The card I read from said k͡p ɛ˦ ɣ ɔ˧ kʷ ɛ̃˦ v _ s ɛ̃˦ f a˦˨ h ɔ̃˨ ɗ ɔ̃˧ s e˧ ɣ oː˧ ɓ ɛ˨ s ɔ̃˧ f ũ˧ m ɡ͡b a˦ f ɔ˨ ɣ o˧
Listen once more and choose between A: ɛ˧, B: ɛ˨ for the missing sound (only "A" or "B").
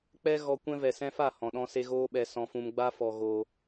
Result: B